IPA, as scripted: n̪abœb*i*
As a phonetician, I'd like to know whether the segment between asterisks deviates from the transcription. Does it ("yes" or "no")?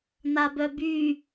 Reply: yes